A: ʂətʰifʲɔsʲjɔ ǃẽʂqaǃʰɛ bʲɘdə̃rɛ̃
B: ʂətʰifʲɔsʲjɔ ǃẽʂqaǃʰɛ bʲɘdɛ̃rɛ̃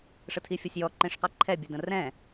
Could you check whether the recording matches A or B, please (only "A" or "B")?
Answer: A